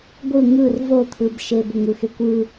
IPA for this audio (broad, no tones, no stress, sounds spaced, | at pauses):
ɡʷ ɯ ŋ ɯ r v o t̪ʰ ɯ b ʃ e b ɵ ŋ ɯ x e kʷ ɯ